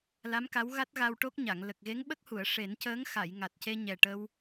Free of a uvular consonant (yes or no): yes